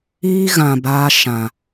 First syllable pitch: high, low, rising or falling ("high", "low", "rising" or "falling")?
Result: high